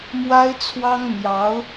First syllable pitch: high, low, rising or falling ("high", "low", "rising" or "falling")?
high